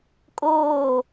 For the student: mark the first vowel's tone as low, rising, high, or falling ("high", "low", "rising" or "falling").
falling